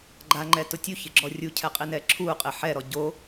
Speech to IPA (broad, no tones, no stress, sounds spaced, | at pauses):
ɡ͡ǃ a ŋ͡ǃ ɛ t ʊ tʲ u ç ɪ ɡ͡ǁ ɔ rʲ u cʰ ɛ qʼ i n ɛ ǁʰ u qʼ ɪ ħ ɛ ɾ ɔ ɟ o